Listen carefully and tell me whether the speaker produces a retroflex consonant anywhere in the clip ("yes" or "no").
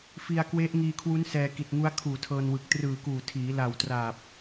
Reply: no